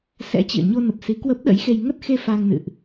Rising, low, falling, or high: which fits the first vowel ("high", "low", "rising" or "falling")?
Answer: rising